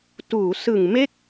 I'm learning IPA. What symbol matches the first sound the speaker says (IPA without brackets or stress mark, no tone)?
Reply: t